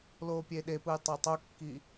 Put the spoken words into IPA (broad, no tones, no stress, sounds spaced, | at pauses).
l oː pʲ e ɗ e p ɯ j tˤ e tˤ o kː i